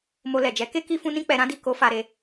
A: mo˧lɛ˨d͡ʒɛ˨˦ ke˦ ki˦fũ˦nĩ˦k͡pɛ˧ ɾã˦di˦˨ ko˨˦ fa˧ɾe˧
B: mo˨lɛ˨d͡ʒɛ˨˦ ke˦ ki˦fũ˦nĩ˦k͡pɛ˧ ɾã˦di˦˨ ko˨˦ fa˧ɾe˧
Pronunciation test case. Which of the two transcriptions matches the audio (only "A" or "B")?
A